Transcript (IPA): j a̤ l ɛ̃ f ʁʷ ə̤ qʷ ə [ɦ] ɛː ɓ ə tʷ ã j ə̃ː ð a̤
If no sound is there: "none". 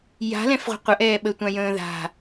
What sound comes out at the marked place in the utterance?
ʔ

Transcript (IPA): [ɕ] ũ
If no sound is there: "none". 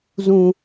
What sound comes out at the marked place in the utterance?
z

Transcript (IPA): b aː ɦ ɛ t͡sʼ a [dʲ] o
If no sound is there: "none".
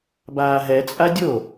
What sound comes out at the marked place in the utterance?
dʲ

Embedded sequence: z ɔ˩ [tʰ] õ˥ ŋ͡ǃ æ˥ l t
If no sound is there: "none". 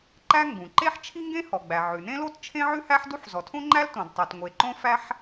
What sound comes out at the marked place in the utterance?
tʰ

